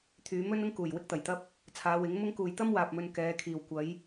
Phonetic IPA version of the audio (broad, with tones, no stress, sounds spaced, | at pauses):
t̪ʰ yː˨˧ m ɵ˥ n ʊ˥ ŋ k uː˨˩ j w ɪ˥ k̚ t̪ ɐ˨˩ j t̪ ɐ˥ p̚ | t͡sʰ aː˨˧ w ɪ˨˥ ŋ m ʊ˥ ŋ k uː˨ j t̪ ɐ˥ m w aː˨ p̚ m ɵ˧ n k ɛː˨˧ kʰ iː˨ w kʷ ɐ˨˧ j